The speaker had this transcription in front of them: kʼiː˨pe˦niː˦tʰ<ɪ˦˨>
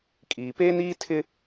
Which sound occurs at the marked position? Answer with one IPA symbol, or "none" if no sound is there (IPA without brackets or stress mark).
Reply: ɪ˦